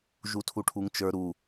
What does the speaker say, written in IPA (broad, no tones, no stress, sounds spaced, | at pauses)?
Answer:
ʒ u tʰ u ʈʰ u ŋ t͡ʃ ə˞ ɾ u